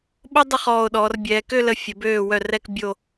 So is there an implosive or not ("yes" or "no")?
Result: yes